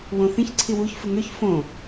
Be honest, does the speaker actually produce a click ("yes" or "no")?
yes